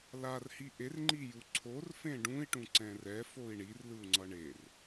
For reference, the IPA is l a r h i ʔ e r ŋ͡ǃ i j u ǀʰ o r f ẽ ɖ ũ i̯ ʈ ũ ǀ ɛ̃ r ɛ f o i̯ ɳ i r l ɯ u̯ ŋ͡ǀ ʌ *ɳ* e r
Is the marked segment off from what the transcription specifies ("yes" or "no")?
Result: no